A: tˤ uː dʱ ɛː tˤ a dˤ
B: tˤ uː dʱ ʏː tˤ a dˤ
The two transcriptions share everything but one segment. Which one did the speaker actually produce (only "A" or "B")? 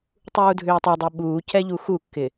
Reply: B